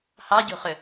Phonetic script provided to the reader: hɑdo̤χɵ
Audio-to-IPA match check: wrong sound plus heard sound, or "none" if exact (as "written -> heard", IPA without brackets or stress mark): d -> ɟ